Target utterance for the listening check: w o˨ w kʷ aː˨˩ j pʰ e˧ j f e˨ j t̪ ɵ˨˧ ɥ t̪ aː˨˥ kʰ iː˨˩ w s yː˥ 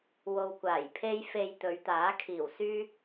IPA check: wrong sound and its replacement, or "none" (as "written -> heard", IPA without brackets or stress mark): none